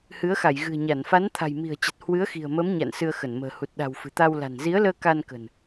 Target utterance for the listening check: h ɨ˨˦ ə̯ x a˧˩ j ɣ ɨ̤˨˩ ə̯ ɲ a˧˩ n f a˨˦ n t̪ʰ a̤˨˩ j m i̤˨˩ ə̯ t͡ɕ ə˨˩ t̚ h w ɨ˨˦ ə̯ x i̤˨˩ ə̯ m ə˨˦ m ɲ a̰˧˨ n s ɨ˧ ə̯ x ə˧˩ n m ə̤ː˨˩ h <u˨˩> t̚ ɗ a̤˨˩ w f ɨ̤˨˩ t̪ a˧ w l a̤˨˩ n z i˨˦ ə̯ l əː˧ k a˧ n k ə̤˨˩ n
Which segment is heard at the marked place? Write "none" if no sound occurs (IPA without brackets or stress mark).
u˨˩